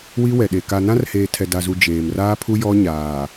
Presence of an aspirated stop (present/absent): present